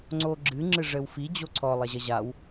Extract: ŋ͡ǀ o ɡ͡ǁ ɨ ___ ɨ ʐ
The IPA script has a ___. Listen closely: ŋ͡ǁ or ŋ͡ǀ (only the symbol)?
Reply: ŋ͡ǁ